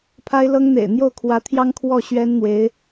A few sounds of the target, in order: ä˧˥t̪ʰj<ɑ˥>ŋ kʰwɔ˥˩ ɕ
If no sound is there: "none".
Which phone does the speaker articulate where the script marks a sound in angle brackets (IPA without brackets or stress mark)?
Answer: ɑ˥